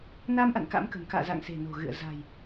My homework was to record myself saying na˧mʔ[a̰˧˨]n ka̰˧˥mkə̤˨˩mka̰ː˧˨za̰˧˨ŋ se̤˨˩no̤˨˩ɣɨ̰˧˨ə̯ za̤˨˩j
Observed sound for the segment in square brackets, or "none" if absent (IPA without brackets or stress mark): a̰˧˨